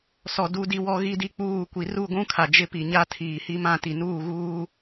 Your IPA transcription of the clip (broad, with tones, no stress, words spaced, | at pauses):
sɔ˨ du˦di˦wɔ˦ ɣi˦di˦k͡puː˦˨ kʷi˨ ru˦˨ɡʷũ˦kʰa˨ d͡ʒɪ˦pi˨ɲa˦ tʰiː˨hi˦mã˦˨ti˨ nuː˦˨ɣuː˦